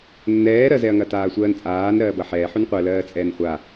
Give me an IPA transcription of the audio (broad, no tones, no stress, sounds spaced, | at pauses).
nː ɛː ɾ ɜ z ɛ ɐ̯ ŋ ɐ t aː sʷ ɜː n t͡sʼ aː n ɾ ɜː b ɐ ħ ɛː ħ ʉ n qʷ ɜ l ɜː t͡sʼ ɛː n χʷ a